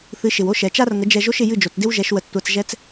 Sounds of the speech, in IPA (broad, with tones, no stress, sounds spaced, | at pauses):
θ ɨ˩˥ ʃ ɪ˩ w o˥ ʃ ɛ˩ t͡ʃ a˥ r ŋ ə˩˥ d͡ʒ ɛ˧ ʒ o˥ ʃ ɪ˧ j ɨ˥˩ d͡ʒ o˩ t͡s d ɪ˥ w ʒ ɛ˩˥ ʃ w ə˧ t͡s tʷ a˧ t͡s ʒ ɛ˥ t͡s